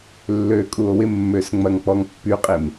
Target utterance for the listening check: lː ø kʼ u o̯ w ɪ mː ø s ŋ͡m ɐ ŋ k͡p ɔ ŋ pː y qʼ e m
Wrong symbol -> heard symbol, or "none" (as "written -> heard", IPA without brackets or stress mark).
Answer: none